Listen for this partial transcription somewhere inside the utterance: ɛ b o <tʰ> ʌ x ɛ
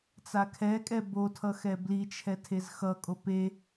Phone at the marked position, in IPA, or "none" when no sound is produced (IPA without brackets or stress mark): tʰ